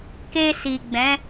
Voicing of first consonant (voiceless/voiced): voiceless